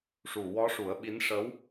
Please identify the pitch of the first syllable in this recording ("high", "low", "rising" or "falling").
low